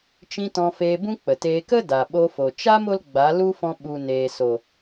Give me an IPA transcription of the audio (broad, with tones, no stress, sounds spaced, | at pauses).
t͡ʃ ĩ˧ t ɔ̃˧ f eː˧ b ũ˦ k͡p ə˨ t eː˧ k ə˦ d a˨ ɓ o˧ f o˨ t͡ʃ a˦ m o˧ l ɡ͡b a˨˦ l u˦ f ɔ̃˧ ɓ u˨ n eː˨ s o˨